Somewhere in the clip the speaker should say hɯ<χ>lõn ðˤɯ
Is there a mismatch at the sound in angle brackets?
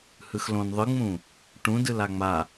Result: yes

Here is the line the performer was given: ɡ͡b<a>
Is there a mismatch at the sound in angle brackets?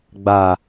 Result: no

